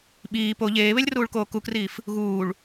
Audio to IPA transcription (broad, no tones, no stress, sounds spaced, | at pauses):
ɓ iː p o ʎ eː β e lʲ r uː ɭ k oː k u k r iː f | ɣ uː ɭ